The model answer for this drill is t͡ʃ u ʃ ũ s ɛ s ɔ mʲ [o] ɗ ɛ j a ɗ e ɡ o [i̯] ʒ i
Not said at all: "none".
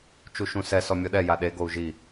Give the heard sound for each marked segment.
ɔ, u̯

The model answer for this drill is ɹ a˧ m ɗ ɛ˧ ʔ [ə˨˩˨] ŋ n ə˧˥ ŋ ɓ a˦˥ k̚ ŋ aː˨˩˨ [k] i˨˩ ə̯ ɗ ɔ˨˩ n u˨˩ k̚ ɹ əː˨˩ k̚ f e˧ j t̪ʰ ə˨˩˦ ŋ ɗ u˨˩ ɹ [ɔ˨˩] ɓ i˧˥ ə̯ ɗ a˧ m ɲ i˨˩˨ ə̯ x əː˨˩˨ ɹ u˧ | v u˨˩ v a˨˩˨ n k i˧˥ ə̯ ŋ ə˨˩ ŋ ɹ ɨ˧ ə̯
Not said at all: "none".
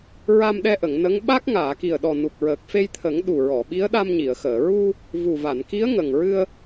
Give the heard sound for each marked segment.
ə˨˩˨, k, ɔ˨˩˨

